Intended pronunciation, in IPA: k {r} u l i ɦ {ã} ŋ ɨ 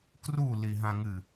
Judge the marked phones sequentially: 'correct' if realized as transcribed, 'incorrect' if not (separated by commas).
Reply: correct, correct